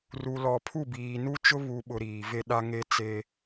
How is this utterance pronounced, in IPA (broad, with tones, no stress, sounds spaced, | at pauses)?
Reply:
r u˨ l ɔ˨ pʰ u˦˨ b iː˨ n u˦ t͡ʃ ʊ˦ β u˨ ɓ ʊ˨ ɾ iː˨ v e˦ ɗ a˦ ŋ e˦ t͡s e˦